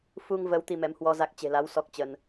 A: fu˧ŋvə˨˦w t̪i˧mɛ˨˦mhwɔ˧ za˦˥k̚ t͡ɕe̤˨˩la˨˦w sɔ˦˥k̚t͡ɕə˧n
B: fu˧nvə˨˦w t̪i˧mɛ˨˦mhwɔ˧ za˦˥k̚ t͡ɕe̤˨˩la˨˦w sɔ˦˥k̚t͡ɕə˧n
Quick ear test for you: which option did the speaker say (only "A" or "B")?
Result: A